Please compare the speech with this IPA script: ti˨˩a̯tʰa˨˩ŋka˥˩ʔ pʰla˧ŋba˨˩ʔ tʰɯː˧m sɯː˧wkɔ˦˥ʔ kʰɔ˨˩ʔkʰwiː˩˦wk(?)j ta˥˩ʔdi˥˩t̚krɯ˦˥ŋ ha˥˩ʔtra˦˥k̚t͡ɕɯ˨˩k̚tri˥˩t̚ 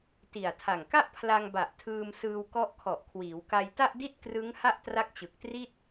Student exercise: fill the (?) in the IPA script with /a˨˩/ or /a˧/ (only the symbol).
a˧